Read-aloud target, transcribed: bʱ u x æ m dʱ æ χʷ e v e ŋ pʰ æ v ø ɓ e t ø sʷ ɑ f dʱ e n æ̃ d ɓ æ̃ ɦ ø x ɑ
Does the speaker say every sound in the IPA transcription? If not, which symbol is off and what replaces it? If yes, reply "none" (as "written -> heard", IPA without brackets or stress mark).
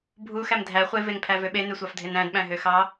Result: t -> n